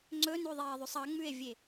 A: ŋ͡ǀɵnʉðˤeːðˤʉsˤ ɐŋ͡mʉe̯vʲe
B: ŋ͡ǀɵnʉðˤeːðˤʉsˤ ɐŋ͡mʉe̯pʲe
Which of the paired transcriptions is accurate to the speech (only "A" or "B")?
A